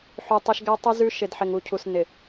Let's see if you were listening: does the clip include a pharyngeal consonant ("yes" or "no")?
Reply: yes